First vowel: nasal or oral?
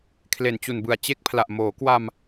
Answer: oral